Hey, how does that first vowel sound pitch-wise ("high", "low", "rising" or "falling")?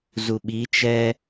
low